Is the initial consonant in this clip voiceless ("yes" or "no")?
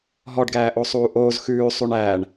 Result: no